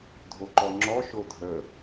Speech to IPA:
dʱ o ǃ ɔ ŋ͡ǁ ɔ ʃ o dʱ ə

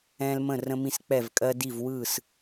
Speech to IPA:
ɛ̃˦ l m ə̃˥˩ r ə̃˦ m ĩ˦ s k͡p ɛ˥˩ v kʼ ɜ˦ d i˥˩ v w ɯ˥˩ s

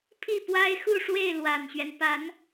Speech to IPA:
pʰ i˥˩ p w a˥ ɪ̯ x u˥˧ ʂ w e˥˩ ɪ̯ l w a˨˩ n ɕ ɥ ɛ˦ n p a˧˥ n

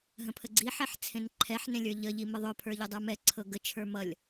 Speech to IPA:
ɦ ə̃ pʰ ə ɡ͡ǀ i ħ ɛ ħ t͡sʰ ẽ n ǃʰ ɛ ħ n ẽ lʲ ə˞ ʎ ə ʎ i m ə ðˤ ɵ pʰ ə˞ ʎ ɵ dˤ ə˞ m ɛ ǀʰ ɤ ɡ ə t͡ʃʰ ə˞ m ʌ lʲ

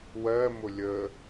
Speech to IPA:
w ɜ m ʊ lʲ ə

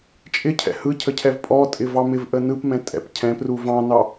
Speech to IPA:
t͡ʃʼ ɪ cʰ ɛ̰ h ɯ cʰ ə cʰ ɛ v pʼ ɔ tʼ ɪ v ɑ m ɪ v ʔ ə n ɯ p m ɛ̃ tʼ ɛ̰ p cʰ ɛ̃ p r u v ɑ̃ n ɑ

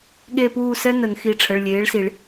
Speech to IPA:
ɠ e˥˧ p uː˥˧ s ɛ˥ n ə˨˩˦ n x i˩˧˩ ʈ͡ʂʰ ə˩˧˩ ɭ lʲ eː˩˥ ɭ s i˨˩˦ ɭ

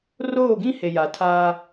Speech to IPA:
r oː˦˨ ɡ ĩ˦ h e˨ j a˨ tʰ aː˦

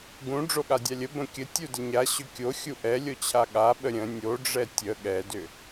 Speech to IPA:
ɡ ũ ɖ͡ʐ o ɠ a dʲ a lʲ ə b ə̃ kʲ ə tʲ u d ə ɲ a ɕ ʏ kʲ o xʲ u ʔ ɛ lʲ o t͡ɕʰ a ɠ a ɓ ə ɾʲ ə̃ nʲ o ɖ͡ʐ ɛ tʲ ə ɠ ɛ d ʏ

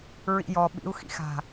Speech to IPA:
ɹ ḭ j ɔ ɓ ḭ u̯ x ḭ x a̤

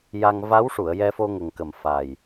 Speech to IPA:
j a˧ ŋ v a˧˥ w ʂ u˨˩˨ ə̯ j ɛ˧ f o˧ ŋ ə˨˩ ŋ k ə˨˩ m f a˨˩ j

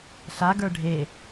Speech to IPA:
ɬ a ɡ ə˞ ɖʱ e

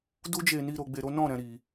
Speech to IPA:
d u˦ d͡ʒ e˧ n i˧ ɾ o˧ ɡ͡b e˧ ɾ o˦ n ɔ̃˦˨ ɾ ɛ̃˨ ɾ i˨

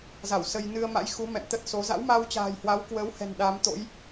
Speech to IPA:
z a˧˩ w s ə˧ j n ɨ˧ ə̯ m a̰˧˥ j x u˨˦ m ɛ̰˧˨ m t̪ ə˦˥ t̚ s o˨˦ z a̰˧˥ w m a˧ w t͡ɕ a̤ː˨˩ j h w a˨˦ w k w əː˨˦ w h ɛ̤˨˩ n ɗ a˨˦ m t̪ o̰˧˥ j

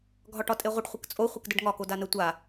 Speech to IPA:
ɡʱ ɒ ʈ ɒ tʼ e ʁʷ ə ɖ χʷ ə k t͡sʼ o χʷ ə k d ə ɖ ŋ ɒ k o d a n ə tʷ a

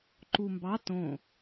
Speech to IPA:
ǃ u m b ɑ t õ

